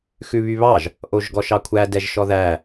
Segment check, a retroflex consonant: absent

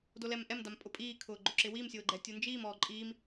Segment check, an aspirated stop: present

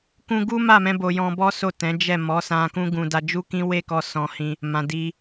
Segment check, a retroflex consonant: absent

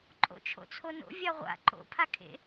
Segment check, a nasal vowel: absent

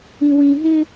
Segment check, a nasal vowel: present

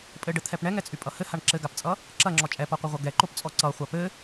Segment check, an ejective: present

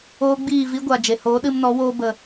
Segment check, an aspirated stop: absent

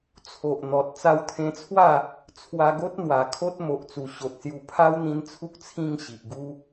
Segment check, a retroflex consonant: absent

